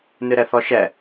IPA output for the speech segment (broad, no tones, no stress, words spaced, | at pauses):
nɨɾɛθɔʃɛ